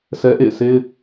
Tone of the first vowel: high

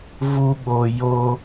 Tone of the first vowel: high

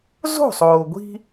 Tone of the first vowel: falling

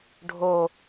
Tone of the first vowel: low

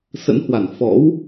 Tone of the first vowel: rising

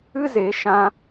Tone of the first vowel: high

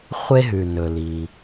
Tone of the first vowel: high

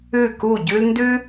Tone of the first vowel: falling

